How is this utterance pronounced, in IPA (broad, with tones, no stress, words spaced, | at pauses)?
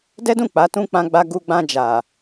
dɛ˦dũ˦˨ k͡pa˨˦ tũ˧ k͡pã˦ɡ͡ba˦ ɡu˧ɡ͡bã˧ d͡ʒa˨